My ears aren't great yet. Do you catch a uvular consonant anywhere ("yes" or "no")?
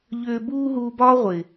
yes